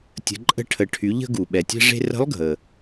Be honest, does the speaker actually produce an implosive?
yes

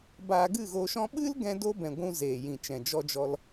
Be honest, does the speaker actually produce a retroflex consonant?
no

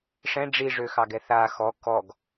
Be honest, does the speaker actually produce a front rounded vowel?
yes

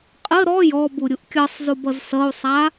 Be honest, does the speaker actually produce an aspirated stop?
no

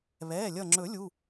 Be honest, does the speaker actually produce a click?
yes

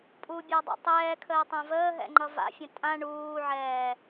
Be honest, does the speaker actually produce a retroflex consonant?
yes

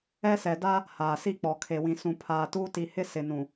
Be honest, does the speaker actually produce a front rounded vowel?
no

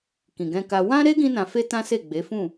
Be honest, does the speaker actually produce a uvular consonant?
no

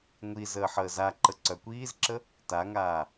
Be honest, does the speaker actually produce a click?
yes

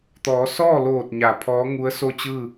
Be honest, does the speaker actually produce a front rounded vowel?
no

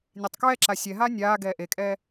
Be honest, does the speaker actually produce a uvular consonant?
no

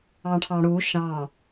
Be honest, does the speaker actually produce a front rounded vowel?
no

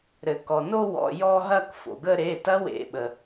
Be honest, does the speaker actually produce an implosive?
yes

